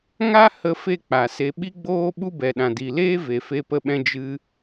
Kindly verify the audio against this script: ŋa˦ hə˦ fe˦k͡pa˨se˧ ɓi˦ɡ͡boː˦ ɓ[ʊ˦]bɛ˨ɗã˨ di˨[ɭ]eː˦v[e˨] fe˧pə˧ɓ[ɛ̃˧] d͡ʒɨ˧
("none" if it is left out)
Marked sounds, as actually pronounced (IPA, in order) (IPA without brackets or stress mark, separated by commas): u˦, l, e˨, ɛ̃˧